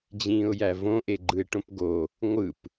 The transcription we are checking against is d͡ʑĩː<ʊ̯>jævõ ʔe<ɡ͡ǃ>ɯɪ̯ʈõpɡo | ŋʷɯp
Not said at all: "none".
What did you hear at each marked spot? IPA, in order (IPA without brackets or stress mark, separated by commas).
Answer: ʊ̯, ɡ͡ǃ